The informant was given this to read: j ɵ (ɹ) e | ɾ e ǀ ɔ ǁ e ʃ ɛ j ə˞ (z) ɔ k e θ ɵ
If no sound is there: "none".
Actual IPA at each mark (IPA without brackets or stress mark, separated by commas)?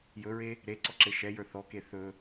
ɹ, θ